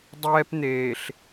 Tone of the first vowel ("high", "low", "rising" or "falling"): high